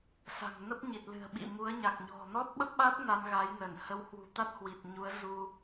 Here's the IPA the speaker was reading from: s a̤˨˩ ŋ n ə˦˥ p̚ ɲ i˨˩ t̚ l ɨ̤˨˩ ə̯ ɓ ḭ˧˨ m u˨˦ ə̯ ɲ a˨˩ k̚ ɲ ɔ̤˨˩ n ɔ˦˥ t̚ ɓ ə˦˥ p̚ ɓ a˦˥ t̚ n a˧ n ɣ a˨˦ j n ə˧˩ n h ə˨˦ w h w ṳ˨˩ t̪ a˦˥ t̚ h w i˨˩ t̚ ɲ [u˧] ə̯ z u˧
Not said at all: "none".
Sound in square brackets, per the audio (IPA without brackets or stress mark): u˨˦